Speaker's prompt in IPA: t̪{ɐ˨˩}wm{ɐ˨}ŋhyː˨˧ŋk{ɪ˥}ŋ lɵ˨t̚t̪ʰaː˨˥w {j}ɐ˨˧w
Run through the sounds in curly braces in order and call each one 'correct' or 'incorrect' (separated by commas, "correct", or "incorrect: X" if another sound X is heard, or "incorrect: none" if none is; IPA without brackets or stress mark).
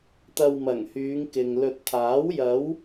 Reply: incorrect: ɐ˧, incorrect: ɐ˨˩, incorrect: ɪ˨, correct